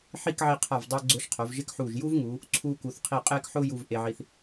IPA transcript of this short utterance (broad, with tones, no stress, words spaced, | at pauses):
ħi˥˧kʕi˧ qʰa˧˩vdˤʊː˧ ɡ͡ǀʊː˧ʃqʰo˩˧vʒɪ˥˧kħuː˧˩ʒ ju˥vŋuː˩˧ | ǀʰuː˧ku˩˧θqʰi˧˩ qʼeː˥kħʊː˥ju˧v ʔe˧ʕi˧θ